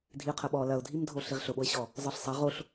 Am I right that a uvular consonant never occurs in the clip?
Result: no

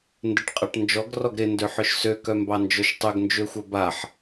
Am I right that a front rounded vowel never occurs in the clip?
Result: no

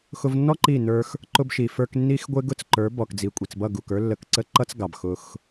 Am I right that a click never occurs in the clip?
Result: no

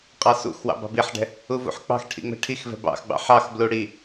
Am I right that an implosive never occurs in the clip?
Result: yes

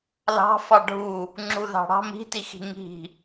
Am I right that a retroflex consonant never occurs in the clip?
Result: no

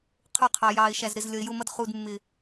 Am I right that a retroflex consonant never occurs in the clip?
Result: yes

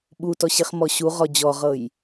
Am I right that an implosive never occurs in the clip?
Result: no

